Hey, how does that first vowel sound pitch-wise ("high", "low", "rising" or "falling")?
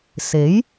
rising